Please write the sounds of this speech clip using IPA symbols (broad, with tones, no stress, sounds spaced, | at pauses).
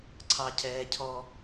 ǀʰ ɑ˨ cʰ ɛː˨ cʰ ɔ˧